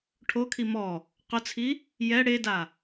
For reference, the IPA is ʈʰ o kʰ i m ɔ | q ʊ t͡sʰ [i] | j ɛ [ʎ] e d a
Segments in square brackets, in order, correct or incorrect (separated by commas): correct, incorrect